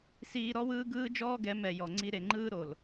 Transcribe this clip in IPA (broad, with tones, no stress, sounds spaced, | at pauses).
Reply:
s iː˧ ɾ ɔ˦ w ɯː˦ ɡ ɯː˦ d͡ʒ ɔː˦ ɡ ɛ˨˦ m ɛ˨ j ɔ˨ ŋ͡ǀ i˧ ɾ e˨ ŋ͡ǃ ɯː˦ ɾ o˨ l